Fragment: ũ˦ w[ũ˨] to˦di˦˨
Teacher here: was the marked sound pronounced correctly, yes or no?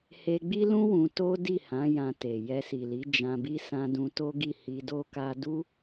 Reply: no